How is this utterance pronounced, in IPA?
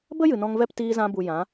bə˦ jɨ˨nɔ̃˧ŋvɛ˦p tiː˧zã˧bu˨ jã˨˦

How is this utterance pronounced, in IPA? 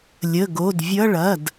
lʲə˩˧˩ ɡo˩˧˩dvʲʌ˧˥˧ ɭɐ˩˧˩d

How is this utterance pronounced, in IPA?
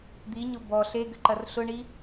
d̪iɲʊ bɔ ɬeɡʏǃɐr ɬʊɳi

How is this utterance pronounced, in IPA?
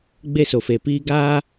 ɡ͡be˧so˨fe˨piː˧ ɡaː˦

